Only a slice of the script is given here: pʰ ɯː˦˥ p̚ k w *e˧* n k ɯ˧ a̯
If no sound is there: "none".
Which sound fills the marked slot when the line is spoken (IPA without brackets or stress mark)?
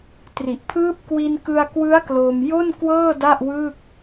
i˧